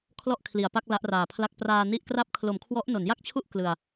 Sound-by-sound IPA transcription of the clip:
kʰlɔ˥˩ʔkʰli˨˩a̯pa˥˩k̚ la˦˥ʔraː˨˩pʰla˥˩k̚ praː˧ ni˥˩ʔ kra˦˥p̚kʰlo˩˦mkʰwɔ˦˥ʔ no˩˦nja˥˩k̚t͡ɕʰu˥˩ʔ klɯ˧a̯

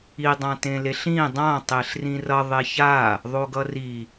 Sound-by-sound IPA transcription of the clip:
i dˤãtẽleɬĩ dˤã tˤeɬrĩrʌ ðˤeça | ðˤoɡʌri

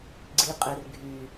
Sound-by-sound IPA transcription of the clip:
ɡ͡ǀiqʼer ɡʱy

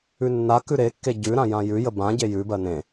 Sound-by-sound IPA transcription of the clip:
ʉnːakʉ ɾekːe ɟʉɾã jãjʉjə bãɟe jʉbɜ nẽ

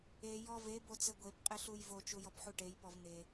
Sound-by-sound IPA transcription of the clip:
e jɔve bot͡sɘɡʷep qʼɘɬujvo t͡ʃujɔpħuʈej pɔvn̪e

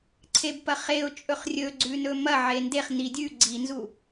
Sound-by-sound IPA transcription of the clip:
ǀʰebpɐχeʊ̯ t͡ʃʼɵχrʲɵɡ͡ǀʉnɵ mɐ ʕendeχ nidʲʉ ɡ͡ǀinzu

